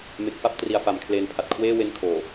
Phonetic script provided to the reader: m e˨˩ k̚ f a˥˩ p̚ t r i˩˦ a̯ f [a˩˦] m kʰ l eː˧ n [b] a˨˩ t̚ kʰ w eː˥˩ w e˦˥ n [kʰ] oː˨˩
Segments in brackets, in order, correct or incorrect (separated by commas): correct, incorrect, correct